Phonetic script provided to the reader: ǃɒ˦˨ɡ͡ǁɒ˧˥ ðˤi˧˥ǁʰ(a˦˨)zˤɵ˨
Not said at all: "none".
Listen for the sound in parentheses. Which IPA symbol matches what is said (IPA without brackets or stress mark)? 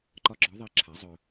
a˩˥